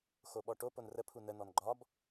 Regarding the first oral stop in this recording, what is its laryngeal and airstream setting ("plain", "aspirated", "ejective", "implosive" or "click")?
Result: implosive